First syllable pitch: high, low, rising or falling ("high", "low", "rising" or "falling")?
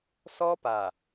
high